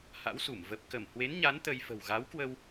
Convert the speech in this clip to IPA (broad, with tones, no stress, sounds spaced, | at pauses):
h a̰˧˥ w s u˧˩ m v ə˨˩ p̚ k ə˧˩ m h w e˨˦ n ɲ a˨˦ n t̪ ə˧ j f ə̤˨˩ w ɣ a˨˦ w k w ə˧ w